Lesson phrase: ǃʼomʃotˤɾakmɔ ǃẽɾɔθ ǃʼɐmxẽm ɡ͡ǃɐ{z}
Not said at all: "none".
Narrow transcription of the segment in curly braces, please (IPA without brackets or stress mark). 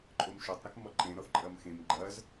z